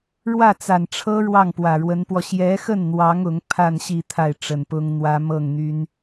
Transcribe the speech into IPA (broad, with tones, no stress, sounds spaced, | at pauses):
ɻ w ä˥˩ t͡s a˨˩ n ʈ͡ʂʰ ɤ˥ ɻ w ɑ˥˩ ŋ p w ä˨˩ ɻ w ə˧˥ n p w ɔ˧ ɕ j ɛ˧˥ x ə˥˩ n n̪ w ɑ˧˥ ŋ ʊ˧˥ ŋ pʰ a˥˧ n ɕ i˥˧ t̪ʰ a˥˩ ɪ̯ ʈ͡ʂ ə˨˩ n p ʊ˥ ŋ n̪ w ä˥ m ɤ˥˩ ŋ n̪ y˥ n